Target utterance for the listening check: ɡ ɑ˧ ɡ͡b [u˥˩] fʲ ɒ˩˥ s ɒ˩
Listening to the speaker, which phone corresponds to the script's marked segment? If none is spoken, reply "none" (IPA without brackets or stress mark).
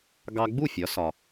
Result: u˥˩